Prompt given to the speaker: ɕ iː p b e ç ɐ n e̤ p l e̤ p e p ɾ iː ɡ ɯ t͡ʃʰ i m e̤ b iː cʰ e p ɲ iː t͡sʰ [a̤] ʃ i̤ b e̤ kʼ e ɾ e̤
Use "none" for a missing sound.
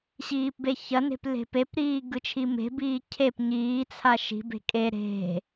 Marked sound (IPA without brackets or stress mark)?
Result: a